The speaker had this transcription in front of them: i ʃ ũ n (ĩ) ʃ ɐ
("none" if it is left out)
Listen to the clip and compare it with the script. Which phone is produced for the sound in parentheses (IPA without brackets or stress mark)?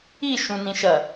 ĩ